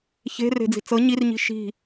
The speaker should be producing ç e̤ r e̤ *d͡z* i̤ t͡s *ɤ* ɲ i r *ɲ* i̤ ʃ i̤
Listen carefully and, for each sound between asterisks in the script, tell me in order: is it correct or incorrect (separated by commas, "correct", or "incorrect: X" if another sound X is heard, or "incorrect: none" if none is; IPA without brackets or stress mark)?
correct, correct, correct